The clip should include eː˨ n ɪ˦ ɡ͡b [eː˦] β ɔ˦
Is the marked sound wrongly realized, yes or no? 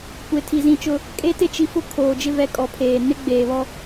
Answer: yes